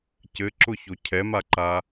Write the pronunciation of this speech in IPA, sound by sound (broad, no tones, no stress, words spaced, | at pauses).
cɘǁʊço cʰɛmaǃa